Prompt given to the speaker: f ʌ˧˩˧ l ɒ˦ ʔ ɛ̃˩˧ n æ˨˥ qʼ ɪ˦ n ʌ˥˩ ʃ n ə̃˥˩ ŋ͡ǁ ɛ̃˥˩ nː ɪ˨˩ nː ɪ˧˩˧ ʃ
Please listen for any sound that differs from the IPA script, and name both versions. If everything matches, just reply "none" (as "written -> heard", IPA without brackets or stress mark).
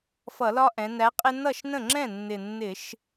none